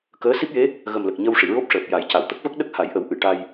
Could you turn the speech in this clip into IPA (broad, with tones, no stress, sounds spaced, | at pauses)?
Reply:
k əː˧˥ s i˦˥ p̚ j e˧˥ | ɣ ə˨˩ m l ə˨˩ k̚ ɲ ə˧ w ʂ i˨˩˨ ɹ o˦˥ p̚ ʂ əː˨˩ p̚ j a˨˩˦ j c a˨˩˨ w t̪ ə˦˥ k̚ v ə˦˥ k̚ ɗ ə˦˥ k̚ h a˨˩˦ j ʔ ə˨˩˦ w ʔ ɨ˨˩˨ ʈ a˧ j